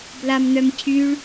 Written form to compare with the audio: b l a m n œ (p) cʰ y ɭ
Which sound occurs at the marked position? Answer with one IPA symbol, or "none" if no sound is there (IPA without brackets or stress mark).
m